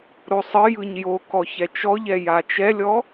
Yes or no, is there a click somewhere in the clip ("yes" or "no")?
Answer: no